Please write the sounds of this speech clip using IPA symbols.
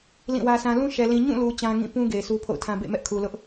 lĩ˦˨wä˦sã˦ lũ˦ʃɛ˨ lĩ˨ɲũ˦˨lu˨ t͡ɕã˦ŋĩ˦˨ pũ˦ ɡe˨ɪ̯sʰu˦pʰo̰˦˨ʊ̯tʰã˦ bḛ˦˨mɛ˦ʔ kʰu˨lʊ˦ʔ

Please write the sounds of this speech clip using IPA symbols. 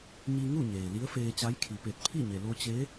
ɲi˧ŋu˥˨ ɲeː˩li˧˥ə̯feː˧t͡ɕa˧˥j kʰi˩pe˧˩t̚pʰi˥˨ɲe˩ lo˧t͡ɕe˧˥

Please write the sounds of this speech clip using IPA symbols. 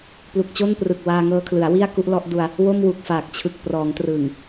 plu˨˩k̚t͡ɕo˥˩nprɯ˨˩k̚ waː˧ŋɤː˧kʰlɯ˩˦a̯ wi˥˩a̯ku˦˥ʔlɔ˦˥ʔdu˧a̯ | wo˥˩mwu˨˩k̚faː˨˩k̚t͡ɕʰɯ˨˩k̚ prɔː˩˦ŋtrɯ˨˩ŋ

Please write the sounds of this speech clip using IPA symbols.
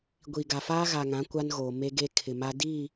ɡʷiː˨ɡa˨faː˦ ɣa˨ŋã˨˦ kʷa˦nɣoː˨ me˦ɡe˦kʰɪ˨ma˦ di˦˨

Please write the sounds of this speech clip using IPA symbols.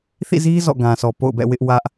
θḭ˦˨zi˦ zɔ̰˦˨ɡã˨ sɔ˨po̰˦˨ʊ̯bɛ̰˦˨ wɪ˦ʔwä˦ʔ

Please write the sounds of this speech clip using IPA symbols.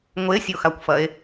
ŋʷesʲoxakʷfɐe̯

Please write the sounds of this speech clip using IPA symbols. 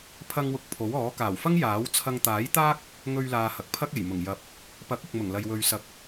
pʰɐ˧ŋwʊ˨˥k̚ pʰo˨˥wɔː˨˥ kaː˨˩wfɐ˥ŋ jaː˨˥wt͡sʰɐ˧ŋ t̪aː˨˥jt̪aː˥k̚ | ŋɵ˧ɥlaː˨ hɐ˨k̚pʰɐ˥k̚ e˨˩jmʊ˨˩ŋjɐ˨˥p̚ | pɐ˨˥k̚ʊ˨k̚mʊ˨˩ŋ lɐ˨jwɵ˨ɥsɐ˨k̚

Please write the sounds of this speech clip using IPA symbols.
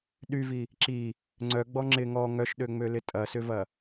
ɗyvi | ǁi | ŋ͡ǀœɡ͡bɔ ŋ͡ǁɪ ŋɔ ŋœʃɗøŋ͡mølɪ tʼɐsʏvɐ

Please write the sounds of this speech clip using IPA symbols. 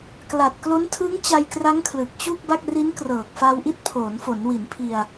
kla˨˩t̚klo˦˥ntʰɯ˦˥ŋ t͡ɕa˧jkra˦˥ŋkʰlɯ˨˩k̚ t͡ɕu˥˩k̚ba˥˩k̚ ri˦˥nkrɤː˨˩k̚fa˧wʔi˦˥t̚ pʰoː˩˦nfo˩˦nwi˩˦n pʰi˧a̯

